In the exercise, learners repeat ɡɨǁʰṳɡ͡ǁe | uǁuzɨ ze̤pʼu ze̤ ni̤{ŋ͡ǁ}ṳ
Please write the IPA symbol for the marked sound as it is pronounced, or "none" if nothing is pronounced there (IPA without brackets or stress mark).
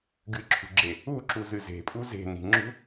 ŋ͡ǁ